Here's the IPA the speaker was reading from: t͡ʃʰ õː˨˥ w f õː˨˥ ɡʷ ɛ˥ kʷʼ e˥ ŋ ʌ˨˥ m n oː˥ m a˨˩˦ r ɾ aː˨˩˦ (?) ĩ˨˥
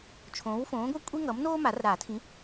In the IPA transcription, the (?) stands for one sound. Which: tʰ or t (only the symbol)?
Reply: tʰ